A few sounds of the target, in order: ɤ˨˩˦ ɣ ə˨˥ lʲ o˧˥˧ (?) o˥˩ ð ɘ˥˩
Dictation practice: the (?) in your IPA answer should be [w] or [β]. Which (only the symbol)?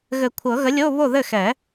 β